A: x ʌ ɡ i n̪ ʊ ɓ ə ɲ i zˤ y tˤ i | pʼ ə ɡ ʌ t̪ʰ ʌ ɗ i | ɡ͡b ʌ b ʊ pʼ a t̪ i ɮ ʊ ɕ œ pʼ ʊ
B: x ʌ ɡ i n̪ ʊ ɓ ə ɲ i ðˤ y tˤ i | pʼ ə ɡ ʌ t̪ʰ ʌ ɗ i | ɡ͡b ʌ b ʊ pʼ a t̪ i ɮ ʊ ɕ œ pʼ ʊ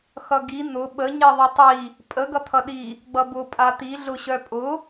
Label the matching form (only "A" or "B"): B